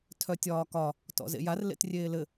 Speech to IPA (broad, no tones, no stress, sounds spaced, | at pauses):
tʰ œ tʲ ɒː k ɒ | t ɔ̰ z ḛ j a r l ḛ t rʲ eː l ɘ